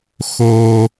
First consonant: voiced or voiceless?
voiceless